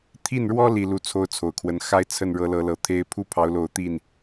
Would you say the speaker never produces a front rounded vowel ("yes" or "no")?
yes